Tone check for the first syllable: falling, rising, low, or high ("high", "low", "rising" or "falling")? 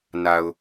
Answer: low